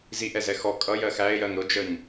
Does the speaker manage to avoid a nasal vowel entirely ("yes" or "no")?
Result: yes